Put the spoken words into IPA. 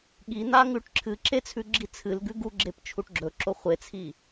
ɠ i n̪ a ŋ ʉ ʈ ǁʰ ɨ ǁ e t͡sʰ ʉ ɡ͡ǁ i t͡sʰ ɨ l ɡ ʉ ɡ u ɡ͡ǁ e p t͡ʃʰ u ʈ ɡ͡ǁ ɵ ǁ o χʷ e t͡sʰ i

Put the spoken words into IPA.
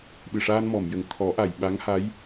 ɓ ɨ˨˩ ʂ aː˧ n m ɔ˨˩˨ m j ə˨˩˨ ŋ t̪ʰ ɔ˨˩˦ ʔ a˨˩˨ j ɓ a˧˥ ŋ h a˧˥ j

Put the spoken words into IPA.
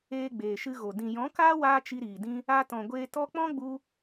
eː˧ ɡ͡b eː˨ ʃ ɨ˧ ɣ o˨ d ĩ˨ j ɔ̃˨˦ k aː˦ w aː˦ t͡ʃ i˧ ɾ iː˨ d ĩ˦ | a˧ t ɔ̃˨ ɡʷ eː˧ t ɔ˦ k͡p ɔ̃˦ ɡ͡b u˧

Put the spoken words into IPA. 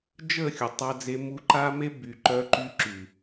d͡ʒ ə˦˨ xʲ ʊ˨ tˤ a˧ d͡z e˧ m u˧ ǃ a˦ m e˧ b y˨ ǃ œ˧ ǃ y˧ ǁ y˨

